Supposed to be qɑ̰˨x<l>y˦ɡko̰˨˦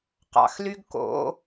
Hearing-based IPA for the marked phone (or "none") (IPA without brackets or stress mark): l